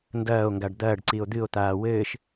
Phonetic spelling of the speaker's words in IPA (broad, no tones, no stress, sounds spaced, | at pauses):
n d ɐː o̯ ŋ ɡ a ɖ d̪ ɐː ɖ ǀ i o̯ d̪ ɨ o̯ t̪ aː w ɘː ʃ